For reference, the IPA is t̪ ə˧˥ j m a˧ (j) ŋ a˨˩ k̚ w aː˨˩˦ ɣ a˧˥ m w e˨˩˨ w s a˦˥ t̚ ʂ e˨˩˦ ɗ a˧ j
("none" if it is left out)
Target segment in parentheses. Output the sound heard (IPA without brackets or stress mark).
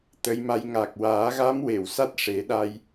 j